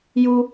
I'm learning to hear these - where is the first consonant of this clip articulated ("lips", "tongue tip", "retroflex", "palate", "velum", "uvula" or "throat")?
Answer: palate